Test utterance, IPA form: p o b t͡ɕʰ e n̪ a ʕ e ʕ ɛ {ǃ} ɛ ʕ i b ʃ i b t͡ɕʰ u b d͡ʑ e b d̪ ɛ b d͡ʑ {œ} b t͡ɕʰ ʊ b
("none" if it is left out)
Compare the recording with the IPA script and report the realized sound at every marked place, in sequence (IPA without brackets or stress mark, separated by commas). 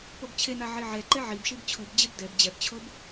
ǃ, ɛ